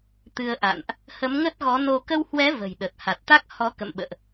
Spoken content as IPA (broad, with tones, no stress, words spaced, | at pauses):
t̪ɨ˧ə̯ʔa̰˧˨nʔ | hə˨˦mŋə˦˥t̚ɣɔ˨˦no˧ kə˧whwɛ˨˦ və̤˨˩jɗə˨˩t̚ ha˨˩t̚t̪a˦˥k̚hɔ˨˦ kə̰˧˨mɓə̰ː˧˨ʔ